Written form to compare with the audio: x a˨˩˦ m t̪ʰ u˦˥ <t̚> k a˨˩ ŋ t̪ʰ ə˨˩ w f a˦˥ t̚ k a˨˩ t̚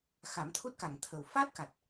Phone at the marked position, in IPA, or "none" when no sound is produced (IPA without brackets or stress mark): t̚